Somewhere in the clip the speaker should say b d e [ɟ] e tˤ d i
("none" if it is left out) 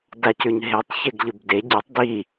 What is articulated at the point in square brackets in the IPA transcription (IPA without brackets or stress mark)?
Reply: ɟ